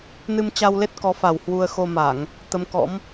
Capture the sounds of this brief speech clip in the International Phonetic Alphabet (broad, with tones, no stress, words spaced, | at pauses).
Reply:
nɨ˧mt͡ɕa˧wle˦˥t̚kɔ˨˦ fa˨˩whwu˧ə̯ xo˧ma˧˩˨ŋ | t̪ə˨˦m kɔ̰˧˥m